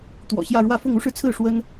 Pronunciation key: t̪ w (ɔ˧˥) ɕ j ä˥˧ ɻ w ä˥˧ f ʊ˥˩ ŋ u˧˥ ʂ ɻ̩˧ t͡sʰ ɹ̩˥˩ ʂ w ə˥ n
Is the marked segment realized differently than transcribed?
yes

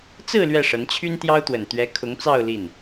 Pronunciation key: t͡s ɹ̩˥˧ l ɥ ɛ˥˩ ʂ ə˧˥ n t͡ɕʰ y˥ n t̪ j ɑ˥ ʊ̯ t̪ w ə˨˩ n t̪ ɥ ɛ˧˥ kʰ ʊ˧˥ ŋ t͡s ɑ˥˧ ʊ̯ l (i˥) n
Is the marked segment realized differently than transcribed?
yes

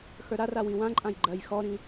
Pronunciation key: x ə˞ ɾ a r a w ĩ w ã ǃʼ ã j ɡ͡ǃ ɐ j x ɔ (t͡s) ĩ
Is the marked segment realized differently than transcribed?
yes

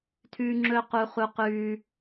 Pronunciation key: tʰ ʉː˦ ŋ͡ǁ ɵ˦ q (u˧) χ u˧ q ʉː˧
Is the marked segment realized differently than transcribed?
no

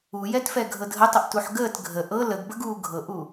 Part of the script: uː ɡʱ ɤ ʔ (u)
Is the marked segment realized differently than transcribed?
no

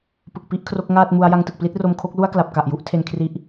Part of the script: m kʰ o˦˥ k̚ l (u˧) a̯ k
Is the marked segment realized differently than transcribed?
yes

